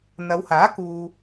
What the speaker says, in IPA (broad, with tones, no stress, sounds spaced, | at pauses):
n̪ ɐ˨˧ w h aː˨˥ k uː˨